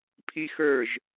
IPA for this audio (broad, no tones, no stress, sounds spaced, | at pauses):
pʰ i x ə˞ ʒ